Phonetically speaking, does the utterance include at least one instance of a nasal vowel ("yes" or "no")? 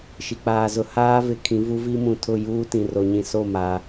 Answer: yes